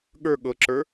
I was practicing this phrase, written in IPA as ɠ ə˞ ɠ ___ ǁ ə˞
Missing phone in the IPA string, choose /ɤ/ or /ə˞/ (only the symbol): ɤ